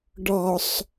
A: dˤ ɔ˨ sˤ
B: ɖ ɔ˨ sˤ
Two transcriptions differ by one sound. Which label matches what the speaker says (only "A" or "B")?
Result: B